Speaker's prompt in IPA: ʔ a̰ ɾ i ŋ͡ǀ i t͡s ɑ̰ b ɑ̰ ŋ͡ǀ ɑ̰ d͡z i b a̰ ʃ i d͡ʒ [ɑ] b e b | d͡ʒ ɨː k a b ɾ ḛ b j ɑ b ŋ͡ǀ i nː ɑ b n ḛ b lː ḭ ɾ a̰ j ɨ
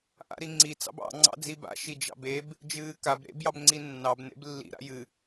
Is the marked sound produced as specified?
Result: no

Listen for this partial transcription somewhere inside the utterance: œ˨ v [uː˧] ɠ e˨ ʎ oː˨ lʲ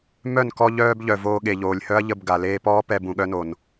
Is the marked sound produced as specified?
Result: no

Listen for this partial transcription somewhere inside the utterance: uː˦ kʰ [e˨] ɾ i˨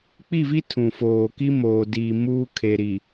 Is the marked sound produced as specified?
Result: yes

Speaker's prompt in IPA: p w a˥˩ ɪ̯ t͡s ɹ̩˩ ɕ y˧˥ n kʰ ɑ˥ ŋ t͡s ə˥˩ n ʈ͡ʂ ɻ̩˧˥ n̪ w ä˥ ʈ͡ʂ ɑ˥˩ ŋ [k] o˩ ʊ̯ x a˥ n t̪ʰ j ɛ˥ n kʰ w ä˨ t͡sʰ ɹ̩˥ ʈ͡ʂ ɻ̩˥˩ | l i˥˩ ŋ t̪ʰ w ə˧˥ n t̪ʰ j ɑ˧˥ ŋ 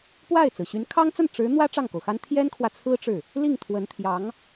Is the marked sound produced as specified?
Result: yes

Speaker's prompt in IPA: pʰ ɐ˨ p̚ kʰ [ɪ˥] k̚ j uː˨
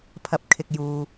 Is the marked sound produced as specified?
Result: no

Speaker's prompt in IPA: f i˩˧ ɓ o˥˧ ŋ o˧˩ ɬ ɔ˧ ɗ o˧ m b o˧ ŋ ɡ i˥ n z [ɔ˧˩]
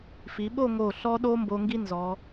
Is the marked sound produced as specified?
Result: no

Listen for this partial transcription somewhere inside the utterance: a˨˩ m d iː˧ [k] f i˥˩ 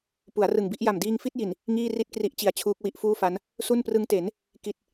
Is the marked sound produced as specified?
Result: no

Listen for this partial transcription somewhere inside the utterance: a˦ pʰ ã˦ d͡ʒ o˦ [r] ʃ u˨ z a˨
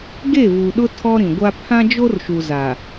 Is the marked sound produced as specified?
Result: yes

